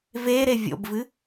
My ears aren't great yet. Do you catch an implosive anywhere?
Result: no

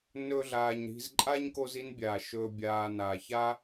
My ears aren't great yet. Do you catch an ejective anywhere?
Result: yes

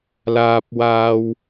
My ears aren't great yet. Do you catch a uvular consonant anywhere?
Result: no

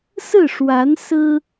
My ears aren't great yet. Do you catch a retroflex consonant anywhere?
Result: yes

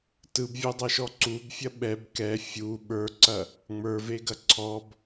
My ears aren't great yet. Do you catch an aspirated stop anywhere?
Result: yes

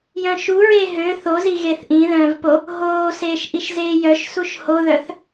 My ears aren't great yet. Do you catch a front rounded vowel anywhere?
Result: yes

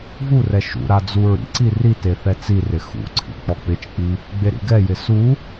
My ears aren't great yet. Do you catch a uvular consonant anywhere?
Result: no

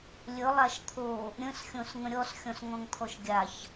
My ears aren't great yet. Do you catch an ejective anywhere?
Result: no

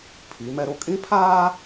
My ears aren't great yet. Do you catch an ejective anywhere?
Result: yes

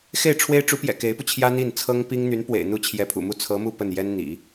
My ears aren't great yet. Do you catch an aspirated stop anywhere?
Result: yes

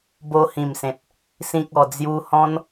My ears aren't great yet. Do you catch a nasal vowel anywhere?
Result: yes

